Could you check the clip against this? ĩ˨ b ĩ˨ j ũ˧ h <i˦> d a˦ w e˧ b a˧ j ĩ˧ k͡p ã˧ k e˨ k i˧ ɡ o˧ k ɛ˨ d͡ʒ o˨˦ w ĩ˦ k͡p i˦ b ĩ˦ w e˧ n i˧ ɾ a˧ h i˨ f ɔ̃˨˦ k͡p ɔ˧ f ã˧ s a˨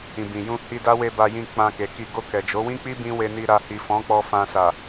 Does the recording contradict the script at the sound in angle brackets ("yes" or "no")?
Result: yes